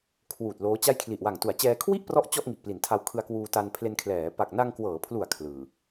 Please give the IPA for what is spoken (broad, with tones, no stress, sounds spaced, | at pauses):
kʰ w uː˨˩ t̚ l oː˦˥ t͡ɕ a˥˩ j kʰ l i˨˩ ʔ w a˨˩ ŋ t u˩˦ a̯ t͡ɕ ɛː˧ kʰ w i˥˩ ʔ p r ɔ˦˥ ʔ t͡ɕ ɔ˥˩ ʔ ŋ i˨˩ ʔ p l i˩˦ n tʰ a˧ w kʰ ɯ˧ a̯ k w uː˧ t a˧ n pʰ l e˧ n kʰ l ɛː˩˦ p a˨˩ k̚ n a˧ ŋ k w ɤː˩˦ pʰ l u˨˩ a̯ kʰ l ɯː˨˩